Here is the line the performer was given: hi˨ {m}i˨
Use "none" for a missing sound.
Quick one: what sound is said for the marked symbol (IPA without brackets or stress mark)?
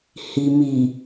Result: m